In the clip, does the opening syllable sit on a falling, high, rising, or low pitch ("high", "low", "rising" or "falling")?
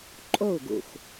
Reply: falling